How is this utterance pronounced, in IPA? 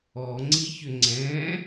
ɔŋ͡ǀiçʏ ŋ͡ǀɛ̃

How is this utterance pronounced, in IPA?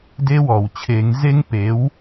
de˦˥wɔ˩wt͡ɕʰe˨˩˦ŋ ze˦˥ŋpe˩˥w

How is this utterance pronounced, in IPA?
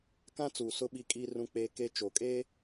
kã˦ t͡suː˨sʊ˦ ɓi˦kʼiː˦rũ˦k͡peː˦ ke˦ t͡ʃo˨kʼeː˦

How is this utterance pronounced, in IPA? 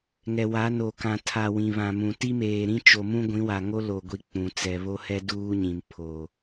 ŋɛ˨wa˨˦no˨ kã˨tʰa˨ wĩ˨βã˨mũ˨ ti˦meː˨ɾĩ˦ t͡ʃo˨mũ˦ ɡʷĩ˨˦wa˨ŋo˦ lo˨ ɡʷi˨ k͡pũ˨t͡sɛ˨ βo˦hɛ˦ duː˦ɲĩ˨m pʰo˨

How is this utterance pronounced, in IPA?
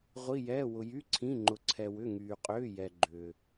ʁʷi˩˧˩jɛː˩˧˩wʊ˩ jy˩˧˩ǀʰĩ˩˧˩ ŋ͡ǃʊ˩ǀʰɛ˩ wʏ˩˧˩ŋyː˩qʼʏː˩˧˩jɛ˩ ɡ͡ǃʏː˩

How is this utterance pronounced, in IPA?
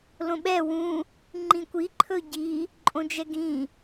lõɓɛ wũ | ŋ͡ǃĩkʷi ǃʰɵɟi | ǃʼõd͡ʒɛɡĩ

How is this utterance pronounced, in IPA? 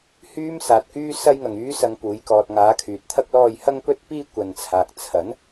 hyː˥msaː˨t̚kyː˥ sɐ˥jŋɐ˨ŋyː˥ sɐ˧ŋpuː˨˧jkɔː˧t̚ ŋaː˨˧ kʰyː˨t̚t̪ʰɐ˥k̚ lɔː˧jhɐ˥ŋ pɵ˥t̚piː˥ kʷɐ˨nt͡sʰaː˨k̚ t͡sʰɐ˨˥n

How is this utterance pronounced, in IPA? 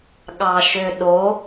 ɠɑʃøɗo

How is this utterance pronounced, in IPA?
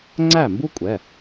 ŋ͡ǀæ˥˨mbu˥kʷʼɛ˩˧˩

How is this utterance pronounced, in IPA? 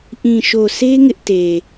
ʔĩ˨ʃo˨se˦ ŋɪ˦ʔte˨

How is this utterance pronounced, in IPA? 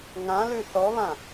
ŋãlʉ θɔβã

